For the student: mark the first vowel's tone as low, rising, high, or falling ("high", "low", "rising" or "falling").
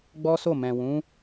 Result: high